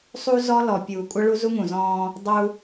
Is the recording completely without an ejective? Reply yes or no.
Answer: no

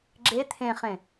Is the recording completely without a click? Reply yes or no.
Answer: no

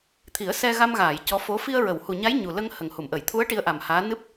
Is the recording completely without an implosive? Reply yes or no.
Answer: yes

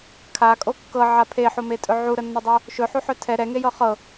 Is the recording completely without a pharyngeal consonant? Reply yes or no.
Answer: no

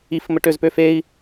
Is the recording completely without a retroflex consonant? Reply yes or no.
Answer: no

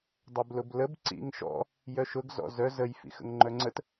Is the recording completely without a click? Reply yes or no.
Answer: no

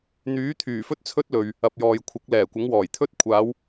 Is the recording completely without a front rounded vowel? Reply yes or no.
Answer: no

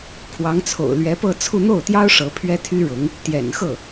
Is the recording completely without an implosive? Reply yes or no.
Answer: yes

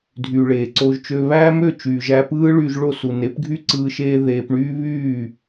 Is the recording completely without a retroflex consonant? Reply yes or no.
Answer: no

